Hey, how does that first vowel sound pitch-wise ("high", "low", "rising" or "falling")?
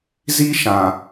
high